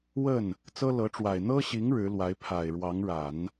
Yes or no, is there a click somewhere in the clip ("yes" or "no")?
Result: no